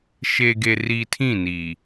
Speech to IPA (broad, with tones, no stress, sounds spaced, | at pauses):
ʃ e˨ ɡ e˨ r i˨ tʰ ĩ˦˨ n i˨